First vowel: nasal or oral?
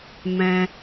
nasal